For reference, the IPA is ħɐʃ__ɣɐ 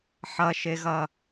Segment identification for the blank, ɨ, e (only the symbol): e